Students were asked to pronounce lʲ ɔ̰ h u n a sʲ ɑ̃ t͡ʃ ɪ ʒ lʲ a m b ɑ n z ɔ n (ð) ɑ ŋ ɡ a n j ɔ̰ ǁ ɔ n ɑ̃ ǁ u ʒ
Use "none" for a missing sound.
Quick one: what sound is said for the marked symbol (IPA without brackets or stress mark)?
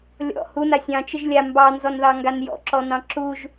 ð